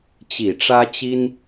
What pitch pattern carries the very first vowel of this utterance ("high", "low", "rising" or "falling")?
low